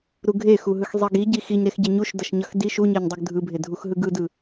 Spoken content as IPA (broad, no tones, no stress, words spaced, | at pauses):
ɾuɡʱexuɦɯx zˤeɡiɟi xiɲɾexɟe ɲuʃdʌʃɲʌx di ʃuɲeɲdˤɯɡ dʱɯbʱe dʱuxɦɯɡɯdɯ